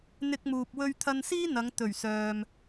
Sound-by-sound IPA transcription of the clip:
n̪ ɪ˧ k̚ m uː˨ p̚ w ɵ˧ ɥ t̪ʰ ɐ˧ n s iː˥ n̪ ɐ˨˧ ŋ t̪ ɵ˨˩ ɥ s œː˨ m

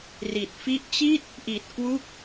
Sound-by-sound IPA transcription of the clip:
r i˨˩ t̚ f i˦˥ ʔ t͡ɕ iː˥˩ t̚ | ʔ i˨˩ t̚ k w uː˥˩ k̚

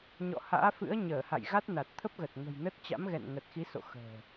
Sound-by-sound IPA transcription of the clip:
ɲ ɔ̰˧˨ h a̰ː˧˥ f ɨ̰˧˥ ə̯ ɲ əː˧˩ h a̰˧˨ j ɣ a˦˥ t̚ n a˨˩ t̚ t̪ʰ ə˦˥ p̚ ɣ ə˨˩ t̚ ŋ ə̤˨˩ j n ə˦˥ t̚ t͡ɕ a̰˧˥ m ɣ ɛ̰˧˨ n ŋ ə˨˩ t̚ x i˨˦ s o̰˧˨ x ə̤ː˨˩

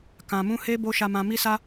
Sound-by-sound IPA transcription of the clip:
k ã˨ m ũ˧ h e˦ b o˦ ʃ a˧ m ã˧ m i˦ s a˦

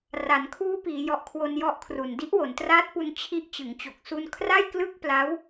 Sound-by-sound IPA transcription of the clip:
r a˩˦ n kʰ uː˦˥ p iː˩˦ j ɔ˨˩ ʔ kʰ w o˧ n j ɔ˦˥ ʔ kʰ r u˨˩ n d i˦˥ ʔ w o˩˦ n t r aː˦˥ t̚ p u˧ n t͡ɕʰ i˦˥ ʔ t͡ɕ ɯ˩˦ ŋ t͡ɕ o˨˩ k̚ s u˧ n kʰ r a˥˩ j k l ɯ˥˩ k̚ p l a˦˥ w

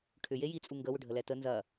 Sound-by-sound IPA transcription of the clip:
ʈʰ ʏ j e j i t͡sʼ u ŋ ɡ ə w ʏ ɖʱ ə l ɛ t ə n z ɐ

